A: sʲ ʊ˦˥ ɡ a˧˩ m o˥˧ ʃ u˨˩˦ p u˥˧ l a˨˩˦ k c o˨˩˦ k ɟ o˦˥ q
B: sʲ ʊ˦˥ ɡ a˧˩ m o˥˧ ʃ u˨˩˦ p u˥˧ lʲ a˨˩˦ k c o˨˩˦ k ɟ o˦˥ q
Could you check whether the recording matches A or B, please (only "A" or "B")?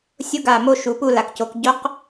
A